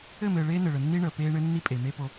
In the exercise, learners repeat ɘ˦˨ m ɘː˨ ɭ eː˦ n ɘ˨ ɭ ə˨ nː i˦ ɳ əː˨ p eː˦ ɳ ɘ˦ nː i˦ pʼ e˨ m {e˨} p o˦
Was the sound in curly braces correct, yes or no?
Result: no